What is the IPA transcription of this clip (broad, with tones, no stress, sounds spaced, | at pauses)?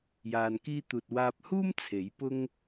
j aː˧ n k iː˥ t̪ uː˧ t̚ w aː˧ p̚ h uː˥ m t͡sʰ e˨˥ j p ʊ˥ ŋ